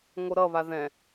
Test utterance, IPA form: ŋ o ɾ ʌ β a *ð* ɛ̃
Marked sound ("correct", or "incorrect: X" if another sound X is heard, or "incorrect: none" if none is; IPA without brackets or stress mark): correct